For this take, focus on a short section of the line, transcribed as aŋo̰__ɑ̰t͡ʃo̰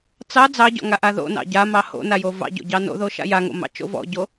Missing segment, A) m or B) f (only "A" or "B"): A